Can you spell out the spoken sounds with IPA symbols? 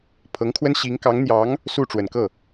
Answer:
pʰ ɤ˧˥ ŋ kʰ w ə˥ n ɕ i˧˥ ŋ k ɑ˧˥ ŋ n̪ j ɑ˧˥ ŋ | s u˥˩ ʈ͡ʂ w ə˨˩ n k ɤ˥˩

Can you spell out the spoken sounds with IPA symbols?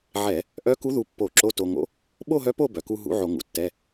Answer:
ʕ ɛ˧˩˧ | ʔ œ˧˥ k u˧˥ ð u˧ pː o˧˩˧ ǁ o˧˥˧ t o˧ ŋ o̰˧˥ | ɓ o˥˧ ɦ œ˧˥ p o˥˧ b œ˩ k u˧ ɦ ṵ˧˥ ʕ o˧˩˧ ŋ ṵ˩ tː ɛ˧˥˧

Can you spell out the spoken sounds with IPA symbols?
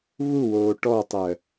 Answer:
β u w oː ʈ ɔ tˤ ɜ

